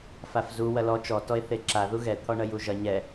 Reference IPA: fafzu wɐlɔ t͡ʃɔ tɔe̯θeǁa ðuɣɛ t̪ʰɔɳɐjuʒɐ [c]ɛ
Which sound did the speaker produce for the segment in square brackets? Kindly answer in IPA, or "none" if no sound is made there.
ɲ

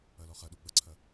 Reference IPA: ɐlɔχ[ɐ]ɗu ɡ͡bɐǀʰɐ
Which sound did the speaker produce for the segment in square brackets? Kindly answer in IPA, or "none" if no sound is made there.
ɐ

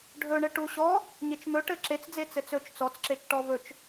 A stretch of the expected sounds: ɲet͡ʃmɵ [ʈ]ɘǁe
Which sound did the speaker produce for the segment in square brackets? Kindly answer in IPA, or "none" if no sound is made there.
ʈ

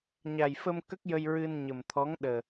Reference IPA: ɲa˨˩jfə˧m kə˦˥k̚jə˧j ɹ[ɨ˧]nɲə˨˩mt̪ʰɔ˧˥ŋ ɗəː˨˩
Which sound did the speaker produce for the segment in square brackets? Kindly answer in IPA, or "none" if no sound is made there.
ɨ˧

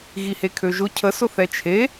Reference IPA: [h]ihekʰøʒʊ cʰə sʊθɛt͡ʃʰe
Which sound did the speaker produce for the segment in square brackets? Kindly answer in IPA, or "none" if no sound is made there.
ɣ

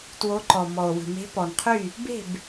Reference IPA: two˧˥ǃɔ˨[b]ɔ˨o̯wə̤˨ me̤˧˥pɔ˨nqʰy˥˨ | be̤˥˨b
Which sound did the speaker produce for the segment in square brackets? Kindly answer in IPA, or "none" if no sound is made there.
m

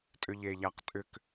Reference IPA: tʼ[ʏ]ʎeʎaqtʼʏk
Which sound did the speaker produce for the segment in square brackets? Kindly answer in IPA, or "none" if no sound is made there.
ʏ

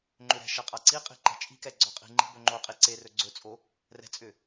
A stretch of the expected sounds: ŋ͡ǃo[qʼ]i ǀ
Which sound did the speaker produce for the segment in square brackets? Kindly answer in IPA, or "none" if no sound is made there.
qʼ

